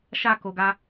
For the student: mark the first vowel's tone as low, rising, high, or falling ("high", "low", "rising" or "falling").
falling